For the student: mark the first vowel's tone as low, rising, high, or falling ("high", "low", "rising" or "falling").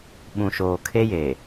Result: low